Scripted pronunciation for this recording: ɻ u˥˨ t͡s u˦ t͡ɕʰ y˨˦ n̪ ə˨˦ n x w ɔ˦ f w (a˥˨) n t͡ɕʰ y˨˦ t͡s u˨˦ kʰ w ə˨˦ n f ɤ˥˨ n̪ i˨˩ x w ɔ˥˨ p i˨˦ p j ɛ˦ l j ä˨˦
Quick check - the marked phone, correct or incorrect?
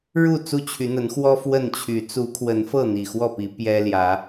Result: incorrect